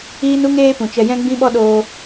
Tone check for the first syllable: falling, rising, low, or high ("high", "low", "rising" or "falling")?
high